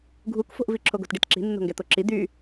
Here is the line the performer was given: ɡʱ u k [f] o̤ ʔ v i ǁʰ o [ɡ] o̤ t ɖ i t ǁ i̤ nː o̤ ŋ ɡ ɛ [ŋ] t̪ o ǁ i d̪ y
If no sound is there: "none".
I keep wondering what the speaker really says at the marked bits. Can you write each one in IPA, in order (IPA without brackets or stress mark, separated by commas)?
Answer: f, ɡ, none